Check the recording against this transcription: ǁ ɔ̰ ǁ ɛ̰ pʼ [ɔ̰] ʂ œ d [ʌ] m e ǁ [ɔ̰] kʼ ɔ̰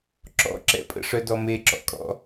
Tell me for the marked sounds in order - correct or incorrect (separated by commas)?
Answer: incorrect, incorrect, correct